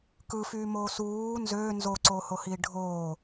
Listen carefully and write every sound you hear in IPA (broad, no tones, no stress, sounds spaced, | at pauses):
k ɯ f yː m oː s uː n z øː n z o ǀ oː h o h iː ɖʱ oː